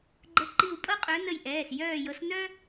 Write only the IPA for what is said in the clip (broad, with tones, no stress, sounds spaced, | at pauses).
ɡ͡ǃ ə˨˦ ǃ i˧˩ w pʼ ɤ˦ qʼ œ˨˦ n ə˧˩ j ʔ ɛː˩˧˩ s j œː˧˩ j ɤ˨˦ s n œ˦